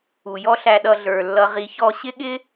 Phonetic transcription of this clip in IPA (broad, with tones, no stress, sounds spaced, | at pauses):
u˨ j ɔ˦ ɬ æ˧ ɗ ʌ˧ ɮ ə˞˨ lː ʌ˧ ʁ i˧ ç ɔ˧ ɕ ɪ˦ ɠ ɪ˦